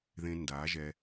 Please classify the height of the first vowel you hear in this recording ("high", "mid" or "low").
mid